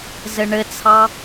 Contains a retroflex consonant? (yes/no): yes